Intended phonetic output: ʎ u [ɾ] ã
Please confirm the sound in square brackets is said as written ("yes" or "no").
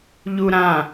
yes